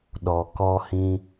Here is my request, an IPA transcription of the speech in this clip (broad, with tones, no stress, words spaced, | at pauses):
ɗɔ˨ kɔ˧hĩ˧